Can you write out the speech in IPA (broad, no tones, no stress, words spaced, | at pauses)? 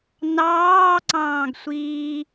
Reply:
nɑːǀɑ̃ːɡsʷiː